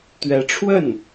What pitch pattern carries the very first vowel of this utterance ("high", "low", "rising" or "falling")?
rising